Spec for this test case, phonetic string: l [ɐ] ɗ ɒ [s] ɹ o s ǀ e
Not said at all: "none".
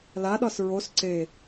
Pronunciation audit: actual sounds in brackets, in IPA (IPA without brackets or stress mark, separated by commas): a, s